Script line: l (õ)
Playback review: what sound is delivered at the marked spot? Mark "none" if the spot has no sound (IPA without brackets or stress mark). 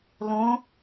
õ